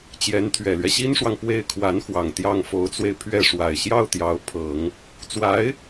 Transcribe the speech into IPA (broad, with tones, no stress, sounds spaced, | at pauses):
t͡ɕ j ɛ˧˥ n t̪ʰ ɥ ɛ˨˩ l ɥ ɛ˦ ɕ i˥ n ʂ w ɑ˨ ŋ p w e˥˩ ɪ̯ kʰ w a˧˥ n x w ɑ˨˩ ŋ t̪ j ɑ˥˩ ŋ f o˧˥ ʊ̯ t͡s w e˧ ɪ̯ pʰ ɥ ɛ˥˩ ʂ w a˨˩ ɪ̯ ɕ j ɑ˥˩ ʊ̯ t̪ j ɑ˧˥ ʊ̯ pʰ ɤ˨˩˦ ŋ | t͡s w a˧˥ ɪ̯